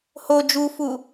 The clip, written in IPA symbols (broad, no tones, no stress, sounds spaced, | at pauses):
h o d͡ʒ u f u